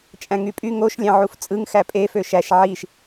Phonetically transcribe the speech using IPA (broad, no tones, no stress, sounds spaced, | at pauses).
t͡ʃʼ æ̃ ŋ y pʼ y ŋ o ʃ lʲ ɑ̃ ʕ u f t͡sʼ ɯ ŋ x æ pʼ e f ø ʃ æ ʃ ʕ i ʃ